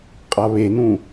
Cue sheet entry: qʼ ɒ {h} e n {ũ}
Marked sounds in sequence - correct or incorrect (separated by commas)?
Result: incorrect, correct